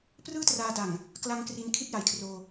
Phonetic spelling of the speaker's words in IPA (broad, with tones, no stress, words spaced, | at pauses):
prɯː˥˩traː˧da˨˩ŋ | kla˧ŋ kri˧nkʰi˥˩t̚ja˩˦jkʰroː˧